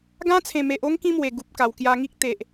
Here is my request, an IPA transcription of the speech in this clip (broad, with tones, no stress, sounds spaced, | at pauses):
ɡ ã˧ t͡sʰ ẽ˨˩ m e˨ ʔ o˧ ŋ k ĩ˦ m w e˨˩ ɡ u˨ p̚ k a˨˩ w k j a˧ ŋ i˦ k̚ t̪ e˨ ʔ